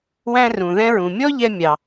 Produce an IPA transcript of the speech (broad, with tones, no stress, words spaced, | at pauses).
wæ̃˧rũ˩ðɛ̃˧ɹũ˩ mʲɔ˥ʎɛ˧mʲɑ˩